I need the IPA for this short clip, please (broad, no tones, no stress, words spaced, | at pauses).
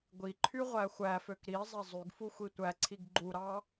ɡʷiǃʰy ʁʷæxʷæføk ɾi zˤezˤyɡfu xʷitʷæǀʰiɡ ɡ͡ǃuɾɑ